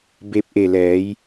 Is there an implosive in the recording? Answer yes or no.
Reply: no